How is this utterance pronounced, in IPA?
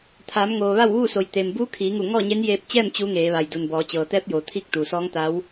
t̪ʰaː˩˧mŋoː˩ ʋa˥˨wʋuː˥˨so˩˧j t̪e˩m buː˧˥kʰiː˩˧ŋu˧˩ ŋɔː˥˨ɲe˧˥n jeː˧p̚t͡ɕɛː˥˨m t͡ɕu˧˥ŋeː˩˧ʋa˩j du˩nbɔː˩˧ t͡ɕɤː˩t̪ɛː˧˥p̚joː˩˧ t̪ʰi˥˨k̚ t̪u˩sɔː˧˥ŋt̪a˧˥w

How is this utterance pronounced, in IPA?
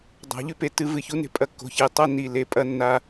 dˤa̤˨˩˦ʎʉ˥˧pe˧tːɨ˧ vɨ˨˩çu˨˥ne̤˧ pʼɐ˧kːo̤˨˩ çe˨˩ tˤɐ˥˧ ni˨˩ le˨˩˦pʼɐ˧nːa˧

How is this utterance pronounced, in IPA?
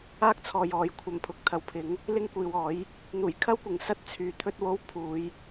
aː˥k̚t͡sʰɔː˨jɔː˨j kʷʰɐ˨˩m pʰʊ˨˥k̚t̪ʰɐ˨wpʰɪ˨˥ŋ | lɪ˥ŋkʷiː˨wɔː˨˥j | n̪uː˨˩jkʰɐ˥wkʷɪ˨˩ŋ sɐ˥t̚ t͡sʰyː˨t̪ʰɵ˥t̚wo˥w pʰuː˨˧j

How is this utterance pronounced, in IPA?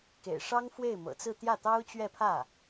kḛ˨˩ɪ̯ ʂɑ˥ŋfwe˥˩ɪ̯mɤ̰˨˩t͡sɹ̩˥˧ t̪jä˥˩t̪ɑ˥ʊ̯t͡ɕɥɛ˥˧ pʰä˥˩

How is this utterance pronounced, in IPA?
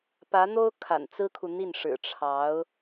pä˧˥n̪o˥ʊ̯ kʰa̰˨˩nt͡sɹ̩˥kʰu˨n̪i˥˩n ʂɻ̩˨˩ʈ͡ʂʰɑ˧˥ʊ̯

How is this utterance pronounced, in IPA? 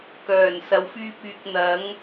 kœː˨˩nsɐ˨wfyː˧p̚ yː˨k̚n̪ɐ˨˥ŋ

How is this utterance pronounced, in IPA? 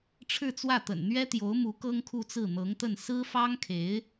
ʈ͡ʂʰɻ̩˥˧t͡swä˥˩t̪ə̰˨˩n n̪ɥɛ˥t̪jo˧˥ʊ̯mu˧˥ kɤ˥ŋkʰu˥˧t͡sɹ̩˥˩ n̪ɤ˧˥ŋt̪ə˥˩n sɹ̩˥fɑ˥ŋkʰe˧˥ɪ̯

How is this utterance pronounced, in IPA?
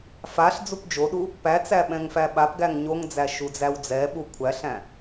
faɬ d͡zupd͡ʒoɗu | pæt͡sæ ɓɛ̃ŋfæɓapɡæŋ ɲoŋd͡zæ ʃud͡zæwd͡zɛɓu kʷʰæɬæ̃

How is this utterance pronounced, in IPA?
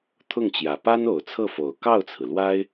t̪ʰʊ˥˩ŋt͡ɕjä˨˩ pa˥no˨˩ʊ̯t͡sʰɤ˥˩fo˨˩ʊ̯ kɑ˥˩ʊ̯t͡sʰɹ̩˩lwa˥ɪ̯

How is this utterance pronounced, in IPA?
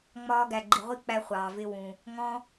ŋ͡mɒː˧ɡæ˨ɡ͡ǃi˨ ʁʷi˦k͡pæ˧ χʷɑː˨vɪ˧ wũ˨ | ŋɔ̃˧

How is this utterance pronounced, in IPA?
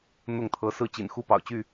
n̪ʊ˥˨ŋt̪ʰɤ˨˦ sɹ̩˥˨t͡ɕḭ˨˩n xu˥˨pɑ̰˨˩ʊ̯t͡ɕy˥˨

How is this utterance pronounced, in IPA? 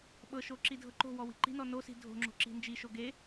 ɓɤʃo ǁidʱɤǃo̤wɔ wi̤ǃi̤nɔ nosi̤ dʱo̤ŋ͡ǁo̤ ǁi̤nd͡ʒiʃo ɡe

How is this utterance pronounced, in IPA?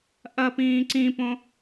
ʔɐpĩː ǀĩpõ

